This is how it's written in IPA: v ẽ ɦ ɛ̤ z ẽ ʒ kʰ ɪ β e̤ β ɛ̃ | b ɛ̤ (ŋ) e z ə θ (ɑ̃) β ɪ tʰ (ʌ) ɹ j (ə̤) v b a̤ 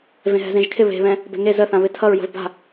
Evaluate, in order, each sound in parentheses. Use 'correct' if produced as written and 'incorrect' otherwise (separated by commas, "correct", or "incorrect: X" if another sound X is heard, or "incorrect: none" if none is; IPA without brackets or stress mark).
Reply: correct, incorrect: ã, correct, correct